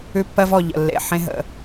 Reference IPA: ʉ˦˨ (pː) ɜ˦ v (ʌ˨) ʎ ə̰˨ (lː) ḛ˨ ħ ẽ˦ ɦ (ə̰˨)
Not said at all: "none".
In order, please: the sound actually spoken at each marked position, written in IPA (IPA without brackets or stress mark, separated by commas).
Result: pː, ɔ˨, lː, ə̰˨